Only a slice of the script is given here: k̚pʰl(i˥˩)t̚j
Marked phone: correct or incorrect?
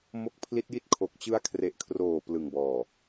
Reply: incorrect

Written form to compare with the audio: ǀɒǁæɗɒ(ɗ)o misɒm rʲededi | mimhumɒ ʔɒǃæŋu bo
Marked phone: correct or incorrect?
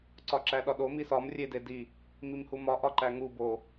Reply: correct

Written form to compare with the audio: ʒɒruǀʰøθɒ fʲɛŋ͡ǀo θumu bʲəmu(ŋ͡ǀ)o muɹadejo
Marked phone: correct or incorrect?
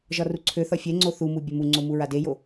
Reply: correct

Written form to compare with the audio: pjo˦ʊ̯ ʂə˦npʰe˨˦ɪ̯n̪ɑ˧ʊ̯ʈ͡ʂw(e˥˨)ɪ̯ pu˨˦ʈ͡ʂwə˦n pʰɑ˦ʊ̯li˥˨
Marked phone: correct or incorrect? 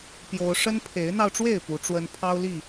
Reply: correct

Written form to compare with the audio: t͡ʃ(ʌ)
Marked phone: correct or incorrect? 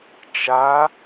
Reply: incorrect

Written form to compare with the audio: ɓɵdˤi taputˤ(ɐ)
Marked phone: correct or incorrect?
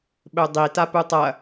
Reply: correct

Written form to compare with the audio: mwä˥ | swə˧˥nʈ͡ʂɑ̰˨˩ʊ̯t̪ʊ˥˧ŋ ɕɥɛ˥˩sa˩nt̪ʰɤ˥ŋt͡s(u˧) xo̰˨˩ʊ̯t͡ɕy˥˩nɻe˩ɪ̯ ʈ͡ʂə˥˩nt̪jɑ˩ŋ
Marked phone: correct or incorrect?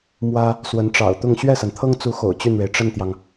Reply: incorrect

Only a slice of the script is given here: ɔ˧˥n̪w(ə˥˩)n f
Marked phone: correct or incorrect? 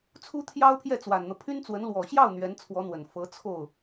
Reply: incorrect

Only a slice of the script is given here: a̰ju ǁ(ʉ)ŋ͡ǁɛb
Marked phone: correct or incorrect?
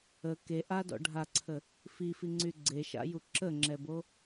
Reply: incorrect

